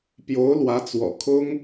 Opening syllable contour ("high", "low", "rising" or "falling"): rising